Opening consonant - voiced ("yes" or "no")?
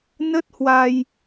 yes